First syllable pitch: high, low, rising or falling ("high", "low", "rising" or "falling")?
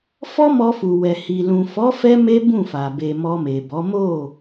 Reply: high